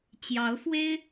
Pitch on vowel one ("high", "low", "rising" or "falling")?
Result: rising